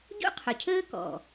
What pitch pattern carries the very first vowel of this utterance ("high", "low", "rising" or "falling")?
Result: high